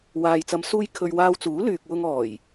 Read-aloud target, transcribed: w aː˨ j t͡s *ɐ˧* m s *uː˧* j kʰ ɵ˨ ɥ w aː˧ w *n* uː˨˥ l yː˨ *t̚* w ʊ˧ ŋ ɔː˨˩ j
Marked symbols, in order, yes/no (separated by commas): no, yes, no, no